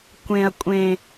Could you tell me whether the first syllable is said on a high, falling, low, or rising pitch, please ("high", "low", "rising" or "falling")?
low